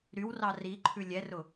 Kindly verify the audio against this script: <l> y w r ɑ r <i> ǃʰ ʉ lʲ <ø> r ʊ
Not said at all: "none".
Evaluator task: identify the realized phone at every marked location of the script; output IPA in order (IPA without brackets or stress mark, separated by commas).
ɾ, i, ɛ